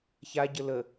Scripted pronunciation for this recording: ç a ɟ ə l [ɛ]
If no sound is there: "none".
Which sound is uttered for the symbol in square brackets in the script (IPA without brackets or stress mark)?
ə